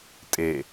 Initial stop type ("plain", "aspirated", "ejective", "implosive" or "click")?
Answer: ejective